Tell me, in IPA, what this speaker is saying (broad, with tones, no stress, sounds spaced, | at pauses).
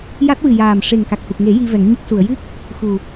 j a˦˥ t̚ w ɨ˨˩ j aː˨˩ m ʂ e˨˩ ŋ k a˨˩ k̚ h u˨˩ k̚ ŋ e˨˩˦ j i˧ v ɛ˨˩˦ ŋ ɲ ə˦˥ k̚ s u˨˩˨ ə̯ j ɨ˦˥ k̚ | x u˨˩